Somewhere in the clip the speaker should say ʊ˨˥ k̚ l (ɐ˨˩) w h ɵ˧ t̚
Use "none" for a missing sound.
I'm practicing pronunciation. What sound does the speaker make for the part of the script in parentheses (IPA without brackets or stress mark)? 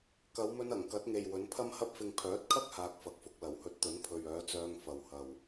ɐ˨˩